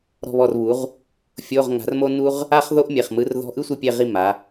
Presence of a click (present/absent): absent